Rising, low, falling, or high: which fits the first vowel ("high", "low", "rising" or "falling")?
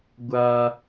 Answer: high